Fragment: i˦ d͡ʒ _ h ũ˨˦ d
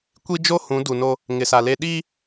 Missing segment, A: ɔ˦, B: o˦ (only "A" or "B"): B